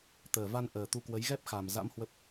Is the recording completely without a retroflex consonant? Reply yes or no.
yes